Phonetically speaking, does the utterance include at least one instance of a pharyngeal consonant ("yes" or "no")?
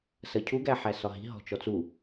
yes